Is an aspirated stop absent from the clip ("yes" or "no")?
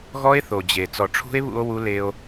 no